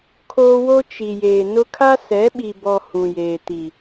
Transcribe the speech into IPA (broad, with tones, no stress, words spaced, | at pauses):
kʰoː˦ wo˦ t͡ʃi˨jeː˨nʊ˦ kʰa˦sɛ˨˦ɓi˨bɔ˨ hũ˨jeː˨ti˨